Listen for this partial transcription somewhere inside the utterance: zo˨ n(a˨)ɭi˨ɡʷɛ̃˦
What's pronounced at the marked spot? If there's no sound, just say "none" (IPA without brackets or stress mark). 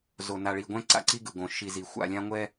a˨